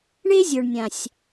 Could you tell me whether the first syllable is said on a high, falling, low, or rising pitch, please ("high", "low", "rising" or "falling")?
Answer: high